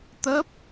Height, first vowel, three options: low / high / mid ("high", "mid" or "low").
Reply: mid